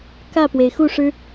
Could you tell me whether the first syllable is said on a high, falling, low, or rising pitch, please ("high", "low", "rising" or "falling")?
falling